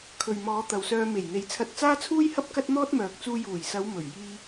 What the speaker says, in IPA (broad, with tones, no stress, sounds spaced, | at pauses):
kʰ ɵ˨ ɥ m ɔː˨˧ t̪ ɐ˨ w s œː˧ m e˨˩ j n̪ e˨˧ j t͡sʰ ɐ˧ t̚ t͡s aː˥ t͡sʰ uː˥ j h ɐ˥ p̚ k ɐ˥ t̚ n̪ ɔː˥ t̚ m œː˨ k̚ t͡s uː˧ j uː˨˩ j s ɐ˨˧ w m ɵ˨˩ ɥ j iː˧